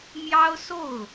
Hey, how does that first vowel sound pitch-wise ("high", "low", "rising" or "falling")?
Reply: high